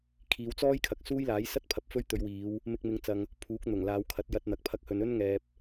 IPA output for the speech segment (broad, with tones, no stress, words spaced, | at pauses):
kʰiː˨˧wt͡sɔː˥j kʰɐ˨k̚ suː˥jlaː˨˥jsɐ˥t̚pʰɐ˨p̚ fɵ˥ɥt̪ɵ˨˧ɥwiː˨˧w | mɪ˧k̚mɪ˨˧ŋt͡sɐ˨ŋ | pʰuː˨˥k̚n̪ʊ˨˩ŋ laː˨˧wkʰɐ˨˥t̚jɐ˧t̚ n̪ɐ˨k̚pʰɐ˧k̚ hɵ˨nɵ˥nŋɛː˨p̚